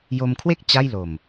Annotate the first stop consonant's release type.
aspirated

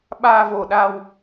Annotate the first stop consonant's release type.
implosive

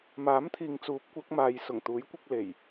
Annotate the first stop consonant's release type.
aspirated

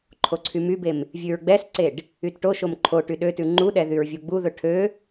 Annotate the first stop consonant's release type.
click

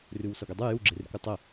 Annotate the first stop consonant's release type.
plain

